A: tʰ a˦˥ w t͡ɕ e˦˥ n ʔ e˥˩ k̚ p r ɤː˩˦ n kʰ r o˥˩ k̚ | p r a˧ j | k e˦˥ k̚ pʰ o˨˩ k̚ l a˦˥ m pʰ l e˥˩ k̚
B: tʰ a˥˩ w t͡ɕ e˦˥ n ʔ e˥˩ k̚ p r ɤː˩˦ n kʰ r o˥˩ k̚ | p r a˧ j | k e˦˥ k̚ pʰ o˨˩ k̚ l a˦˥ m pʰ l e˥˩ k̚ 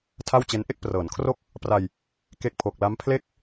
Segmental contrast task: B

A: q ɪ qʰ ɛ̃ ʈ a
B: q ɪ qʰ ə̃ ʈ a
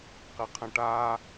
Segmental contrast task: B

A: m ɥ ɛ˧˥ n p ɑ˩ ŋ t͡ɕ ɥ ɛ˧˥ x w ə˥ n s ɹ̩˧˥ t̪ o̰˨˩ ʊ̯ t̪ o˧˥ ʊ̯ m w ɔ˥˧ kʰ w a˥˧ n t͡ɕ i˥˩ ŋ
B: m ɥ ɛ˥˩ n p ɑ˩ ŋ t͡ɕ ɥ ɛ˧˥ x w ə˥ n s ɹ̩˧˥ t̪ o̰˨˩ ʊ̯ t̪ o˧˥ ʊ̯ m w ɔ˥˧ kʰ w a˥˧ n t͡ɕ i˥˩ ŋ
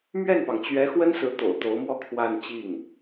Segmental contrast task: B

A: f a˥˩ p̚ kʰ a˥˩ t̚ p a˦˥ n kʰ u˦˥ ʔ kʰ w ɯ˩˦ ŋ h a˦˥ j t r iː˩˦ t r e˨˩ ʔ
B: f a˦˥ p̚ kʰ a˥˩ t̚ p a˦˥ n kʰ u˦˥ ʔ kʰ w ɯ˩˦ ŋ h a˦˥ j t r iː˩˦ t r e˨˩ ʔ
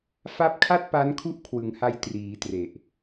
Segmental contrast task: B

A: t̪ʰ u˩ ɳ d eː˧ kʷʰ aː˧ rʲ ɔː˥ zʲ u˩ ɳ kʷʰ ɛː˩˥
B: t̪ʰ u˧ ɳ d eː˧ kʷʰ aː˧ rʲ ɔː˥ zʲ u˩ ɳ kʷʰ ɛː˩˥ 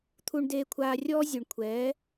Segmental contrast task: B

